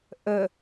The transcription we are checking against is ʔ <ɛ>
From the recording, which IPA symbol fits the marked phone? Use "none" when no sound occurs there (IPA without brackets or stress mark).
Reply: ə